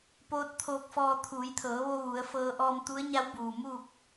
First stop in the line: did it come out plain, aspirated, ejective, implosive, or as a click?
plain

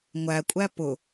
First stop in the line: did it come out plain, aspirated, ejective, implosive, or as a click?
ejective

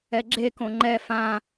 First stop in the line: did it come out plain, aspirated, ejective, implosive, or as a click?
click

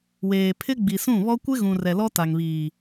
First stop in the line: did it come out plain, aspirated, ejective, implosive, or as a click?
aspirated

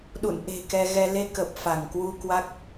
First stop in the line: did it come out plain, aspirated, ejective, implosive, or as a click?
implosive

